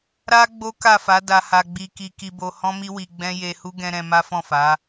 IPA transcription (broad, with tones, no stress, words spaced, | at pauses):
ɾa˦ ɡ͡bo˦ka˦˨fa˨˦ da˧ha˧ɡ͡bi˧ ki˧ki˧bo˧ hɔ̃˦mi˦ wi˧ɡ͡bɛ̃˦ je˧hu˦ ɡɛ̃˧ ɾɛ̃˧ ma˦fɔ̃˦˨fa˨˦